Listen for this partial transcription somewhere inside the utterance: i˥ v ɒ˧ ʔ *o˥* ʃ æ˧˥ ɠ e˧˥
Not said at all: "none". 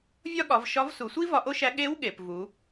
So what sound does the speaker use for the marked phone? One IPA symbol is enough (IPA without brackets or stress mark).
o˥